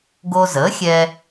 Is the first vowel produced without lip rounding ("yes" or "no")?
no